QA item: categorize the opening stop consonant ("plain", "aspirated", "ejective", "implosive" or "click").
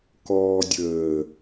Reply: plain